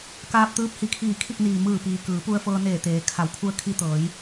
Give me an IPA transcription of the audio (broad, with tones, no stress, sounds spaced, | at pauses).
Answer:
k aː˧ p̚ t̪ ɯː˧˥ p̚ h i˩˧ kʰ iː˧˩ kʰ i˥˨ k̚ n iː˩ m ɯː˧˩ p iː˩ k ɯː˩˧ p u˧ ə̯ f ɤː˧ n eː˧˩ t̪ eː˩˧ kʰ a˩˧ w kʰ u˧ ə̯ kʰ i˧ t̪ ɤː˩˧ j